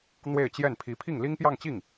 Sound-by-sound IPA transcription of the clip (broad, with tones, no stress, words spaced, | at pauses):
n̪we˥˧ɪ̯t͡ɕjɛ˥˩npʰi˧˥ pʰi˥˩ŋli˥ŋpjɑ˥˧ŋt͡ɕi˥˩ŋ